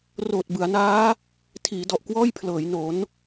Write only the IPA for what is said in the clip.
roː˨˩t̚bɯ˩˦a̯naː˦˥ | tʰiː˩˦dɔ˨˩ʔkwɔː˥˩jpʰlɤː˩˦j no˩˦n

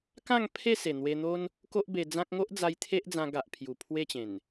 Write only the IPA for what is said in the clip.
kã˥˧ŋ pʰe˥˧se˨˩ n̪we˧n̪o˦n | ko˦ʔbe˧d͡zã˦k̚ ŋo˦ʔd͡za˧j t̪ʰe˦ʔd͡zã˧ ɡa˨ʔ pʰju˨˩pʰwe˥˧t͡ɕẽ˨˩n

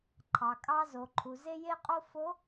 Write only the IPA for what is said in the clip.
ǃʰɑ˩kʼɑ˧zo˩ ǃʰu˩ze˧je˧qʼo˧ fo˧˥

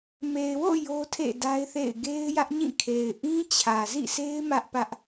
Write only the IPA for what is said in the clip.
me˨ɪ̯wo̰˦˨ jo˦tʰḛ˦˨da˦ɪ̯θḛ˦˨ɪ̯ ɡe˦ɪ̯jä˦ʔɲĩ˦˨ kʰe˨ɪ̯ ʔĩ˦ t͡ɕʰä˨zḭ˦˨sʰe˦ɪ̯ mä˦ʔpä˦ʔ

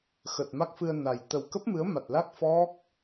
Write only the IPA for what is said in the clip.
xə˨˩t̚ma˦˥k̚fɨ˧ə̯na˨˩j t̪ə˨˩wkə˦˥p̚mɨ˨˦ə̯ma˨˩t̚ la˦˥k̚ fɔ˦˥k̚

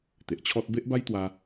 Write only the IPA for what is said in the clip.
t̪e˨ʔt͡ɕʰɔ˦t̚ be˦ʔba˦jt̪wa˧

